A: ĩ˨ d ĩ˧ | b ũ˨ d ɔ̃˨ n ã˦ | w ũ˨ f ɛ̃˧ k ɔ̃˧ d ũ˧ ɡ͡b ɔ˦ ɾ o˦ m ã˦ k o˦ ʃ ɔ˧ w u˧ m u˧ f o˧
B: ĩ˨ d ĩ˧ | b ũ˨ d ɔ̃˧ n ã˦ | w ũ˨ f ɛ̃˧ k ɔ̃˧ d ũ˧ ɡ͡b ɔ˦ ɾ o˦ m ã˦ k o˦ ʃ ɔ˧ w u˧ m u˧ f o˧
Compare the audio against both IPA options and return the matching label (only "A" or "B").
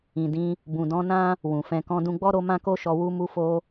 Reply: B